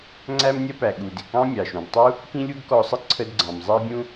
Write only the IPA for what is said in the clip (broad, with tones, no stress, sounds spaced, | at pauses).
ŋ͡ǀ æ˥ m nʲ ʌ˥ p æ˩ ɠ u˩ d ɪ˩ k ɑ̃˥ mʲ ɑ˩ ʃ ũ˩ d tˤ u˥ | k ĩ˥ lʲ u˥ ɡ k ɔ˧ sˤ ə˥ ǀʰ ə˧ d ɡ͡ǀ ɑ̃˩ m zˤ ɛ˥ bʲ ũ˥